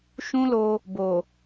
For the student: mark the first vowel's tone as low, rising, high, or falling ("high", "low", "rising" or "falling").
high